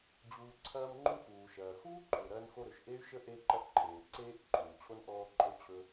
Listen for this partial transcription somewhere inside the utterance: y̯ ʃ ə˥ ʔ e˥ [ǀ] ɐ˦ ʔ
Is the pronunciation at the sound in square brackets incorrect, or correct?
incorrect